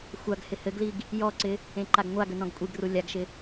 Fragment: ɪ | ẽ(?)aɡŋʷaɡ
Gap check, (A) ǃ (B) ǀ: A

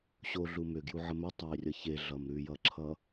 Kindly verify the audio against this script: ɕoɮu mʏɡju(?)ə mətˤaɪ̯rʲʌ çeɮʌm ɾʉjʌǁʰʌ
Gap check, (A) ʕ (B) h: A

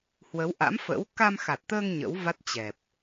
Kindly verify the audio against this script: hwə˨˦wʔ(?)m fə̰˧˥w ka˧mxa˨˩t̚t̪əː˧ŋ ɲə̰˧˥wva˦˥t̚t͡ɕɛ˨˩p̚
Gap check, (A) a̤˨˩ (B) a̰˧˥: B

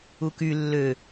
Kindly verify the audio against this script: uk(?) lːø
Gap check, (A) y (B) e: A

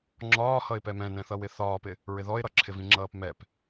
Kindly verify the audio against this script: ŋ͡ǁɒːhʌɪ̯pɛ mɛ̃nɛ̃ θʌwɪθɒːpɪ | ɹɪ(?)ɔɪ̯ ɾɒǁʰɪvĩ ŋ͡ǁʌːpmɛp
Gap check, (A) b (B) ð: B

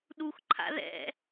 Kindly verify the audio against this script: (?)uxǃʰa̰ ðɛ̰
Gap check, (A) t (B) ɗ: B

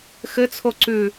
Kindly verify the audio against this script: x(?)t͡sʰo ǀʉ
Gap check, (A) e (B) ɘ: B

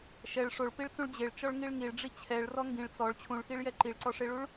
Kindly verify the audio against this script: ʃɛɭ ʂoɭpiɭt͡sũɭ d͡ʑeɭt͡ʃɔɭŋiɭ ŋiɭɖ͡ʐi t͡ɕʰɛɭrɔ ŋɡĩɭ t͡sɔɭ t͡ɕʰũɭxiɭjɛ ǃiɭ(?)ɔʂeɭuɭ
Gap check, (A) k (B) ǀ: B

